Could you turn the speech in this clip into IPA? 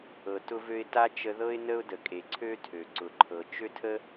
ɤ˩ t ʊ˧ v ø˧ ɪ̯ t a˥ t͡ʃ ə˧ ð ɤ˥ ɪ̯ n ə˥ ʊ̯ d ə˩ kʼ e˩ ǀʰ ø˥ tʰ ø˩ ǀ ʊ˩ ǃʰ ɤ˩ t͡ʃ ø˥ tʰ ə˥

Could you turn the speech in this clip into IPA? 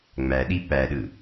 ŋ͡m æ ɗ i p æ ɗ ɯ

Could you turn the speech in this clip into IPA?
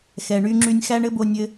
x ɛː˩ ɳ yː˧ ŋ͡ǁ yː˧ nʲ x æ˥ ɳ ɘ˥ b o˧ nʲ ɘː˧

